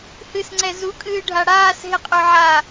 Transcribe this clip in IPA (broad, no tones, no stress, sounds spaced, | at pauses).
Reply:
h ɨ s ŋ͡ǀ ɛ z u kʼ ɨː ɖʱ a ɽ aː s ɦ ɪ qʼ ø ʕ aː